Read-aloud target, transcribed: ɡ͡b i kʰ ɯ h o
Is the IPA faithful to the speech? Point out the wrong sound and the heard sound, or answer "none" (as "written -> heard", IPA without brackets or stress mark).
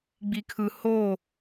none